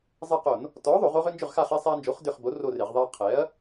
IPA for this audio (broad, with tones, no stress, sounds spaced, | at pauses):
zˤ e˦˨ q o˧˩˧ n | t ɔ˨˥ ðˤ o˧˩˧ ʁ o˦ ʁ ʏ˦ n d͡ʒ ʏ˦˨ ʁ x a˦˨ χ e˦ sˤ ɛ˦ ɐ̯ n d͡ʒ o˨˥ χ d ʏ˦˨ χ b o˨˥ r o˦˨ r e˧˩˧ ʁ ðˤ ɛ˦ ɐ̯ qʰ ɛ˨˥ ɐ̯